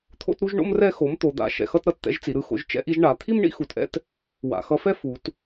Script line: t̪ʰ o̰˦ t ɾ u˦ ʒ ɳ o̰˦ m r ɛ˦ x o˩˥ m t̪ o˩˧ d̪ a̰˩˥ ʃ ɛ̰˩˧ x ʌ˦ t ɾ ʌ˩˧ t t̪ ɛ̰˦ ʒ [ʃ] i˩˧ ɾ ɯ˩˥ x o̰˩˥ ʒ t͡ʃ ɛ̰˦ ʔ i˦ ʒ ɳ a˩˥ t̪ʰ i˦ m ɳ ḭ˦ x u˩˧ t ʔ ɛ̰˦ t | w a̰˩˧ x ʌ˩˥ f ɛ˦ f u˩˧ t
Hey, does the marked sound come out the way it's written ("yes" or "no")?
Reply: no